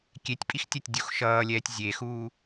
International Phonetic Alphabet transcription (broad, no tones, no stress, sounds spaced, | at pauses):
kʲ e tʲ pʼ i x tʲ ɛ tʲ dʲ u x ʃ ʌː lʲ ɛː tʲ zʲ e x uː